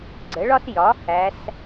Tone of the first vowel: rising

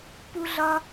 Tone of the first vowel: high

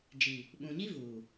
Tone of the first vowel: low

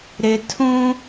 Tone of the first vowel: high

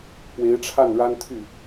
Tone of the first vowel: rising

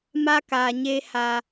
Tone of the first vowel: high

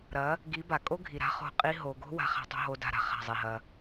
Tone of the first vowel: rising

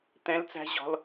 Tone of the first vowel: high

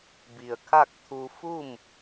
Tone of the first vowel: low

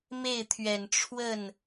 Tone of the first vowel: falling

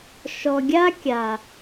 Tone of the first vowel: low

